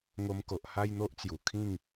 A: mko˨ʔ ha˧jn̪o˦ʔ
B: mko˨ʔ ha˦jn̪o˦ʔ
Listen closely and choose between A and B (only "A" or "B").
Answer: B